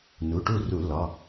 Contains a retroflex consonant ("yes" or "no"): yes